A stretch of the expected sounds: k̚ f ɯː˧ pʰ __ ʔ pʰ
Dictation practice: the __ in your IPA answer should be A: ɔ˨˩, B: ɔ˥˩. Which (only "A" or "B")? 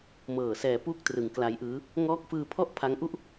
B